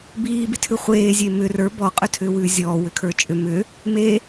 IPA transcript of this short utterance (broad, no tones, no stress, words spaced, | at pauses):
biːbitʰʉ χʷeːzʲe mʏ rə˞ bɔqʼʏtʰʏːwʉː zʲɔːwʏkʰə˞ t͡ʃʼʏ mʏ | me